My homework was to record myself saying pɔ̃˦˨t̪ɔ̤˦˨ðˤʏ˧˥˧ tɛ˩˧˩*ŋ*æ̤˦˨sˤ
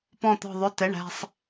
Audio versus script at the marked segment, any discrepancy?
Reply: yes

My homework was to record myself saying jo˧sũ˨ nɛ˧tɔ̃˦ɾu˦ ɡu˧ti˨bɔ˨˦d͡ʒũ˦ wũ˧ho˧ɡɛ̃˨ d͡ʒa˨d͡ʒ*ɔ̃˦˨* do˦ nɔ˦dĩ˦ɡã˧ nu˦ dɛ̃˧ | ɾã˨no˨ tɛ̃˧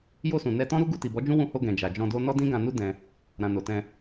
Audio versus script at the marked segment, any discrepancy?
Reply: yes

